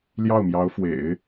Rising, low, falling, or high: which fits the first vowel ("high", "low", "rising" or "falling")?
falling